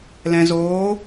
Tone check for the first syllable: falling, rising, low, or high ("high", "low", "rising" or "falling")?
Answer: low